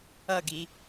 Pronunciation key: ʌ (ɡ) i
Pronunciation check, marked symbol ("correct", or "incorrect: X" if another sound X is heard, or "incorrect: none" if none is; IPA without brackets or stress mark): correct